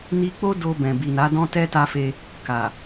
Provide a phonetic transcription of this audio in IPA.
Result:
ni˧k͡po˦ do˧bɛ̃˨ bi˨na˨˦ dɔ̃˦tɛ˦ ta˧fe˧ | ka˨

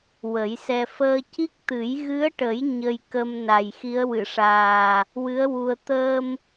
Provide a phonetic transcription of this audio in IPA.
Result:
wə˨˩˦jsɛ˧ fəː˧ci˦˥k̚t̪ɨ˨˩˦j ɣɨ˧˥ə̯ʈə˨˩˦j ɲə˧jkə˧m na˨˩jxi˧˥ə̯wɨ˨˩˨ʂaː˨˩ | wɨ˧˥ə̯ wu˧ə̯ t̪əː˧m

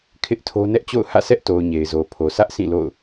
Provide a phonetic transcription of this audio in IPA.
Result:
kʰɪ˦ʔtʰo˦ nɛ˦ʔt͡ɕo̰˦˨ʊ̯ hä̰˦˨sʰɛ˦ʔto˨ʊ̯ ɲe˨ɪ̯zo˨pʰo˨ sä˦ʔsʰĩ˦˨ lo̰˦˨ʊ̯

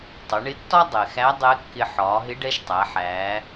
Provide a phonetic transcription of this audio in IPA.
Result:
tˤʊ˩˧ɳɪ˧˥tːɒ˥ dˤɛ˩xæ˧˥ dˤɛ˧˥kːɪ˧ ħɒː˩˧ɦɪ˧˥ ɖɛ˧˥ʃtˤæ˩˧ ħæː˩˧

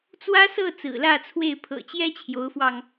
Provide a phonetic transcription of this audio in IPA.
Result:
t͡swä˥sɤ˥˩ t͡sɹ̩˨˩lä˥˧t͡sʰwe˥˩ɪ̯ pʰɤ̰˨˩t͡ɕjɛ˥ t͡ɕʰjo˧˥ʊ̯fwɑ˧ŋ

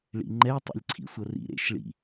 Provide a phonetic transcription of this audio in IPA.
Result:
ɭḭŋ͡ǃɛ tˤɛ̰lʲǀʰḭsʷɐrḭ ɾḛʃ ɭḭ

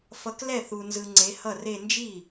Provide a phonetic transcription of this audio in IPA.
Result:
fʌ˨˦klɛ˥˩θu˨nzɯ˨ ŋ͡ǀe˨˦hʌ˥˩re˥˧ nd͡ʒi˥˩

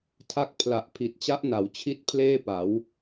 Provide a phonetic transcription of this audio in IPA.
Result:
tʰa˦˥k̚pʰla˨˩ʔ pʰi˨˩t̚t͡ɕa˦˥ʔna˩˦w t͡ɕʰi˥˩t̚pʰleː˥˩pa˩˦w

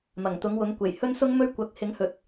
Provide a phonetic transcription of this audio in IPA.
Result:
mɐ˨˩ŋt̪ʊ˨˥ŋwʊ˨˥ŋkʷe˨˩j hɵ˥nsʊ˥ŋmɵ˥ɥkʷɐ˨k̚ hɪ˨˥ŋhɵ˨t̚

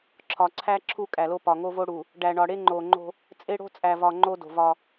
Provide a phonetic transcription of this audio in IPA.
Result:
ǁʰɒ˨ǀʰæ˦ ǁʰu˦kʼæ˨lo˦ pɒ˨ŋo˦vo˦ ɽu˨ | ɖæ˨ɳɒ˨ ɽe˦ŋ͡ǃo˨ŋ͡ǃo̤˦ | t͡sʼe˦ɽo̤˦t͡sʼæ˨vɒ˨ ŋ͡ǃo˦do̤˨vɒ˦

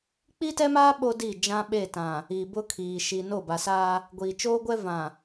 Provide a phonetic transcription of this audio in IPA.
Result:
k͡pi˦tɛ˦maː˦ ɓo˦di˦˨ d͡ʒã˦ɓe˦˨tã˨ | iː˨bʊ˦kʰiː˨ ʃi˨no˦˨ba˨saː˦ | ɡʷiː˨t͡ʃoː˦ɡʷɛ˦ vã˨

